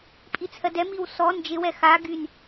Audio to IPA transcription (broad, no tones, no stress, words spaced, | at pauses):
pʼit͡sʰɜdɛ miwsɔ nd͡ʒɪwɛ xa ɡyn